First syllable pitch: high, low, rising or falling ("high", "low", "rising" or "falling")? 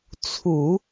low